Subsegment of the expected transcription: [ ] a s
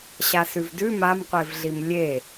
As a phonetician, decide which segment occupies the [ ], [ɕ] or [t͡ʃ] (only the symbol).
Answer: ɕ